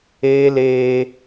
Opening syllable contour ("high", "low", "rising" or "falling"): high